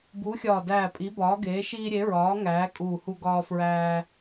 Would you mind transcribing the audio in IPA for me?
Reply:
b uː˨˥ xʲ ɒː˧˩ d æː˧˩ pʼ i˨˥ b ɒː˨˥ ɡ eː˨˥ ʃ iː˦ ɾʲ e˨˥ ɹ ɒː˨˥ ŋ æː˨˥ kʼ uː˧˩ h u˦ ɡ ɒː˦ f ɹ æː˦

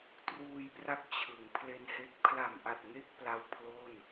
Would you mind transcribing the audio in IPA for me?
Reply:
t r uː˧ j p r a˦˥ k̚ t͡ɕʰ ɯ˩˦ ŋ pʰ l e˧ n h e˦˥ k̚ pʰ l a˨˩ m ʔ a˨˩ t̚ ŋ e˥˩ k̚ p l a˦˥ w pʰ l o˥˩ n

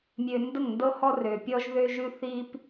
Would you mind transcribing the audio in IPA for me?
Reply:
mʲ ø˨ n d ə˦˨ ŋ n d ɤ˦ h ɔ˦ r ø˨ pʲ ɔ˦ ʒ ð ø˦ ʒ ʉ˦ θ i˦ p

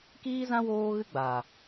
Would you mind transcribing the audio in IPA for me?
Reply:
k iː˦ z ã˦ w oː˦ ɣ ɨ˦ ɡ͡b a˨

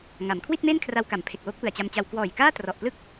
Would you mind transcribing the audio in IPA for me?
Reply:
ŋ a˩˦ m kʰ w i˥˩ t̚ m e˥˩ n kʰ r a˦˥ w k a˩˦ m pʰ e˨˩ k̚ w o˦˥ k̚ p ɯ˨˩ a̯ t͡ɕ a˧ m t͡ɕ a˧ w k w ɔː˨˩ j k aː˥˩ t r ɔ˨˩ ʔ p l ɯ˥˩ k̚

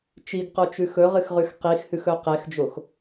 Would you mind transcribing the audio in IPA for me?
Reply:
t͡ʃ i ɡ q o t͡ʃ ʉ x ɵ ʁ ɨ x ʁ ʉ x q i x h ʉ x ɵ q e x d͡ʒ o x

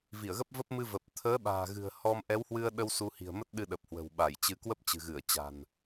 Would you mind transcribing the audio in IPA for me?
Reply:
v i˧˩ ə̯ ɣ ə˦˥ p̚ v ə˦˥ p̚ m ɨ˧ v ə˨˩ p̚ t̪ʰ əː˨˦ ɓ a̤ː˨˩ ɣ ɨ̤˨˩ ə̯ h ɔ˧ m ʔ ɛ˨˦ w h w ɨ˧ ə̯ ɗ ə˧ w s u˧ h i̤˨˩ ə̯ m ə˦˥ t̚ ɗ ɨ˧ ɗ ə˨˩ p̚ h w ə̤˨˩ w ɓ a˧˩ j t͡ɕ ɨ˧ k w ə˦˥ p̚ t͡ɕ ɨ̤˨˩ ɣ ɨ˧˩ ə̯ t͡ɕ a̤˨˩ n

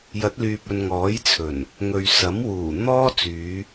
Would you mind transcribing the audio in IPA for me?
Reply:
j ɐ˨˥ t̚ l yː˨ p̚ ɵ˨ n ŋ ɔː˨˥ j t͡sʰ ɵ˨˩ n | ŋ ɵ˨ ɥ s ɐ˨˥ m w uː˨˩ n̪ ɔː˥ t͡s yː˨˧

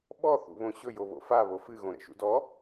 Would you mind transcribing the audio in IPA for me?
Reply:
ɓ ɔ θ ṵ β õ ɕ ɵ j o β o̰ f a β o f ɨ ɣ õ ɾ ɛ̰ ʃ ṵ d ɔ

